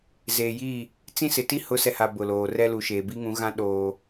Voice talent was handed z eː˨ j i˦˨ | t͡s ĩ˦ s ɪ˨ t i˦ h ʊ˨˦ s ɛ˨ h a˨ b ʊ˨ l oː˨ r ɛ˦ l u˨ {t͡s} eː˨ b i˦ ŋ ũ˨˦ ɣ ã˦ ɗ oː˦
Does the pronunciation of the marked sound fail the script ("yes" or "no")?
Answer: yes